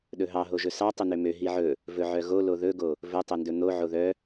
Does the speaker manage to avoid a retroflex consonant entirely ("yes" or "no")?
yes